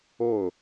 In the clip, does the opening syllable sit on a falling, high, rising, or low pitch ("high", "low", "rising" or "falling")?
falling